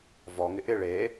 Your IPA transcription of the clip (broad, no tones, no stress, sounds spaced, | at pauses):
v ɔ ŋ ɪ ʔ ɪ ɭ e